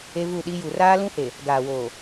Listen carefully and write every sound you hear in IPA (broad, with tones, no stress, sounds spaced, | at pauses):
e˦ v u˦˨ ɗ i˦ j u˨ r aː˦ l ũ˦ h e˨ | ɡ aː˨ w oː˨